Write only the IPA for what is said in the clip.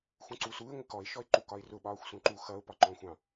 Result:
x ũ ǀ u s u ɪ̯ ŋʷ ɪ k ɔ ɪ̯ ʃ ɔ ɪ̯ ǃ u k ɒ ɪ̯ r ʊ ɓ ɒː xʷ s ũ ǃ u x ʌ ʊ̯ p ɒ ǃ ɔ̃ xʷ ɑ̃

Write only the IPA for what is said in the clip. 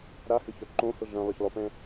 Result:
ɾ a h ʏ ç œ ǃ õ h ʊ ɮ œ̃ lˠ ʊ ç lˠ o p ɛ̃

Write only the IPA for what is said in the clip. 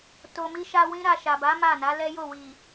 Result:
t o˨ m i˧ ʃ a˧ w ĩ˦ ɾ a˧ ʃ a˨ b a˨˦ m a˦˨ n a˨˦ l ɛ˦ j o˦˨ w i˨

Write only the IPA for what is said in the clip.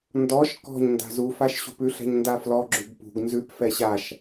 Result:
n d ɔ ʃ k ɔ̤ ɲ n d a̤ z u f a ʃ ɕ ṳ p ʉ ɬ ɛ̤ ɲ n d a f l ɔ ɡ͡ǁ ʉ ɡ p ṳ ɡ n z ʉ p f ɛ ɕ a ʃ

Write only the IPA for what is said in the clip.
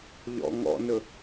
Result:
ʎ ɔ̰ ŋ ɔ̰ n ɵ

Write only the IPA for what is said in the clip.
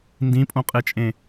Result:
n d ĩ pʼ õ qʼ e t͡ʃʼ ẽ

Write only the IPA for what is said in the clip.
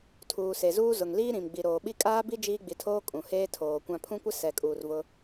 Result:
tʰ uː˨ s e˨ z uː˦ z ʊ˨ ŋ l iː˦ ɾ ĩ˨ m ɡ͡b i˨ ɾ oː˨ ɓ i˦ kʼ aː˦ b i˦ d͡ʒ iː˦ ɡ͡b i˨ tʰ oː˦ kʼ ũ˨ h eː˦ tʰ oː˨ kʷ ã˨ pʰ ũ˦ kʷ ɪ˦ s ɛ˨ kʼ uː˨ r v ʊ˦

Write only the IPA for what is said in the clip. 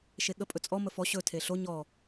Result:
ʃ e ɠ ə pʼ ɵ t͡sʼ ɔ m ə f ɔ ɕ ɵ tʰ e ɬ o ɲ ɔ

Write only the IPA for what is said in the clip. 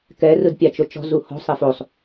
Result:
k ɛ r ɯ d pʲ a t͡ʃ o t͡ʃ ɔ̤ z u h ɔ̤ sˤ e f o sˤ

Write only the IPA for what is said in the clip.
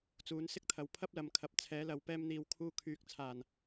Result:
t͡s uː˨˧ n s ɪ˥ k̚ t̪ʰ ɐ˨ w pʰ ɐ˥ p̚ l ɐ˨˧ m kʰ ɐ˨ p̚ t͡sʰ ɛː˨˧ l ɐ˨˧ w p ɛː˧ m n̪ iː˨ w kʰ uː˧ kʰ yː˨ k̚ t͡sʰ aː˨˩ n

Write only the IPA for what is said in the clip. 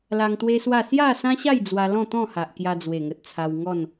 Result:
l a˧ ŋ t̪ w e˦ s w a˥˧ s j a˥˧ s ã˦ ɕ a˥˧ j d͡z w a˧ l ɔ̃˥˧ t̪ ɔ̃˥˧ h a˨ ʔ k j a˧ d͡z w e˨˩ ŋ ə˨ t̚ t͡sʰ a˧ w ŋ ɔ˥˧ n

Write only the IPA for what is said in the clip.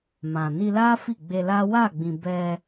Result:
m ã˨ n i˧ l a˦ f i˦˨ ɡ͡b e˧ l a˦ w a˦˨ ɡ͡b ĩ˨ b ɛ˧

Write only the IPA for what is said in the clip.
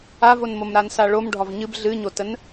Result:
a v o n m o m ɾ a n s a ɭ o m ɖʱ ɒ v ɲ ɨ b ɮ ɨ ɲ o t ə n

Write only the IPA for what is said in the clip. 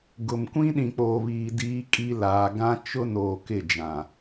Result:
ɡ ʊ˨ m kʷ ĩ˦ ɗ ĩ˨ k͡p oː˨ β iː˨ d iː˦ kʼ i˦ l aː˨ ɡ ã˦ t͡ʃ ʊ˦ n oː˨ k ɪ˦˨ d͡ʒ ã˨

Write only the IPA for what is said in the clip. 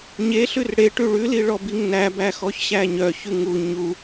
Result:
ɲ e ɬ ʉ r ɽ e ʈ ʉ ɭ ʉ l i ɭ ɔ b i ŋ n æ b æ x ɔ ç ɕ æ ɲ œ ç ʉ ŋ u ɲ u

